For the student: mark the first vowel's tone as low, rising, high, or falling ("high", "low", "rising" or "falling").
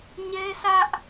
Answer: high